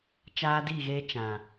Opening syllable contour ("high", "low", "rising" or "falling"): high